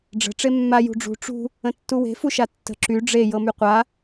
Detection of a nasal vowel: present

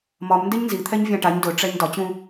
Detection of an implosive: absent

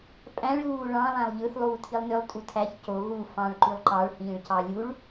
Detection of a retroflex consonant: present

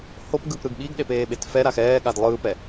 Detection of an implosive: present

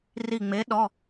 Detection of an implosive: present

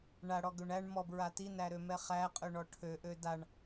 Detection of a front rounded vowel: present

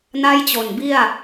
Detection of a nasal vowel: absent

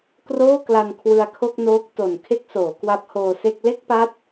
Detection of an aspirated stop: present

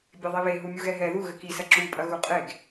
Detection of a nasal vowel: absent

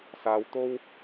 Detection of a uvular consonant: absent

